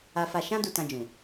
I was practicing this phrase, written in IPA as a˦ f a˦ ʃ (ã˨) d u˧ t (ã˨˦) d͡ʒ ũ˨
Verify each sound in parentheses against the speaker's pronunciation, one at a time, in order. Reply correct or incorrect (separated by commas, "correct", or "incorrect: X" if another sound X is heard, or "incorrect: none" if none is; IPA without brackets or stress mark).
incorrect: ã˦, incorrect: ã˧